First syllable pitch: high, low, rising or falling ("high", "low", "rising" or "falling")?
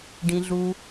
low